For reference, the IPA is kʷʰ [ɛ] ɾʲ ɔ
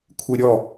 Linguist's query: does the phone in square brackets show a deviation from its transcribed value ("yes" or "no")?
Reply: yes